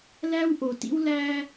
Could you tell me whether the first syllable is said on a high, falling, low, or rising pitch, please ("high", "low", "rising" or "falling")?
high